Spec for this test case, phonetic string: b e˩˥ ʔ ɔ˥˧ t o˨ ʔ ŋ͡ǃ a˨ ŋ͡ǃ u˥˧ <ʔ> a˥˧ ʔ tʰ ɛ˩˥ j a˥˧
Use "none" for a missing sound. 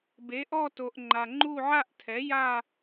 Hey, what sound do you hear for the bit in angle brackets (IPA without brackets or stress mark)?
ʕ